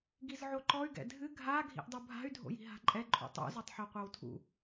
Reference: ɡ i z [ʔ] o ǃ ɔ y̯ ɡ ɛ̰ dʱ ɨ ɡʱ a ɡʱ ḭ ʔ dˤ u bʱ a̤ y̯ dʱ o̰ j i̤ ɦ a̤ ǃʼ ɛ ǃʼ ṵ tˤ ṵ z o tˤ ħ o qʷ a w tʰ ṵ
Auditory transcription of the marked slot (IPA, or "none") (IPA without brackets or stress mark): ʕ